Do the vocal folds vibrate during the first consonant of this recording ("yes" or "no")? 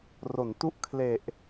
yes